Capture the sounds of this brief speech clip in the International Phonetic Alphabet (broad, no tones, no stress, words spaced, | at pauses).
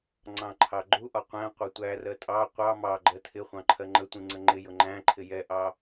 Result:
ŋ͡ǀɑ̃ǃʰɑɡ͡ǃuʔɒ qʷæ̃ qʷɑtʷærɜ tʼɑ qʷɑ mɑɡ͡ǃɜ tʰɪχʷɑ̃ ǃʰɜŋ͡ǃətʷĩ ŋ͡ǀəŋ͡ǃɪjʊ ŋ͡ǃæ̃ǃʰɪ jɛʔɑ